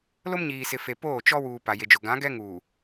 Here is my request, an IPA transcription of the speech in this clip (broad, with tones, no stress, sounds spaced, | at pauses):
l o˦ m ɲ iː˨ s ɪ˨ f e˨ p oː˦˨ t͡ʃ ɔ˦ w uː˨ p a˨ j e˨ d͡ʒ ʊ˨ ɡ ã˨˦ ɡ ɛ˦ ŋ uː˨